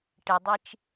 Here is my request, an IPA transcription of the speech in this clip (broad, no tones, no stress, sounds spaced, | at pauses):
ʈ ɪ dˤ i t͡ʃ